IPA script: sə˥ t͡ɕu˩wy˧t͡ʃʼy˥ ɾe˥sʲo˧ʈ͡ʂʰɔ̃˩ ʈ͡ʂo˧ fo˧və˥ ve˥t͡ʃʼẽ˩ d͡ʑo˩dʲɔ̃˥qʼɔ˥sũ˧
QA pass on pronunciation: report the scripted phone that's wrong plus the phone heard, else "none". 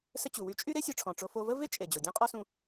ẽ˩ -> e˩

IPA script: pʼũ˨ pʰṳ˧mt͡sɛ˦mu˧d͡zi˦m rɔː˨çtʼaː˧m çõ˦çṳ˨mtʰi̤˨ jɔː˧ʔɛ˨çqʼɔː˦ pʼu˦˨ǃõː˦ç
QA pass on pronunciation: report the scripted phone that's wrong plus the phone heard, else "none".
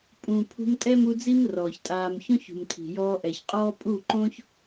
t͡s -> tʼ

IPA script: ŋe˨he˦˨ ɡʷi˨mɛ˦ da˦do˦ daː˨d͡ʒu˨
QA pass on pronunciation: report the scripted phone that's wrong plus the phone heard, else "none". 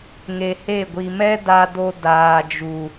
none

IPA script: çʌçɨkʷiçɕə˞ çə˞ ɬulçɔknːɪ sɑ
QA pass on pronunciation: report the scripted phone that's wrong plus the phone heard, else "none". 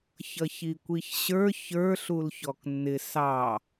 ɨ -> i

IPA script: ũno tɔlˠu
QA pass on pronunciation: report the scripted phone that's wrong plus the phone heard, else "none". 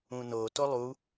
ɔ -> o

